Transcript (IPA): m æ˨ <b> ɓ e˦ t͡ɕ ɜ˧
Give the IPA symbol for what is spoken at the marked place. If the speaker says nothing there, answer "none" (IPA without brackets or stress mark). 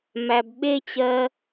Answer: b